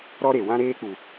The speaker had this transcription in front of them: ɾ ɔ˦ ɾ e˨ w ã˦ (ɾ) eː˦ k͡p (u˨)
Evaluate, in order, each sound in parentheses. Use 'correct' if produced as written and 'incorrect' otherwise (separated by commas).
correct, correct